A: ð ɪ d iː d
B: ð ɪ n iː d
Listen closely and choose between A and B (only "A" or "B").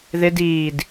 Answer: A